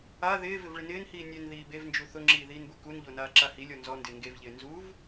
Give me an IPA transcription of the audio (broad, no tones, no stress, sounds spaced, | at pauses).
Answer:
a ð ɪː v ɪ v ɭ ɪ n ɪː n h iː nʲ ɛ n ð iː b e v n d͡ʒ u θ ʊ ŋ͡ǁ iː ð iː n b u k u n ʎ o n aː ǁ a h i lʲ ɔ n z ɔ n d ɪː ŋ ɡ e v ʎ ɪː n z u v